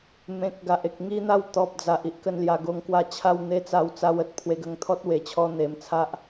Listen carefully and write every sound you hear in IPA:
m ẽ˨ k̚ ɡ a˨ ʔ e˨ k̚ ŋ i˦ n̪ a˥˧ w t̪ ɔ˨ p̚ d͡z a˨ ʔ i˦ ʔ k ə˧ n l j a˧ ɡ o˧ ŋ k w a˥˧ t͡ɕʰ a˥˧ w n̪ e˦ t͡s a˧ w t͡s a˧ w ə˨ t̚ pʰ w e˧ ɡ ə˧ ŋ t̪ʰ ɔ˦ t̚ w e˨˩ t͡ɕʰ ɔ˧ n̪ e˨˩ m t͡sʰ a˦ ʔ

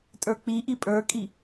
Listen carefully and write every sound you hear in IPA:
tʼ ə˞ k͡p i ʔ i pʼ ə˞ kʼ i

